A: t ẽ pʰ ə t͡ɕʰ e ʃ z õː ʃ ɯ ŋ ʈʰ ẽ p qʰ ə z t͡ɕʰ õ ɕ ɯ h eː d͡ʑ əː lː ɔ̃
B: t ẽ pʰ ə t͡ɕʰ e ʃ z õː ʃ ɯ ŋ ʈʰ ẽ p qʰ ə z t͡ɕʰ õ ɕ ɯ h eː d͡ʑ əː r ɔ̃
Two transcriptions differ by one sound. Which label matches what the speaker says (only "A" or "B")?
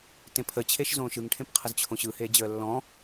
A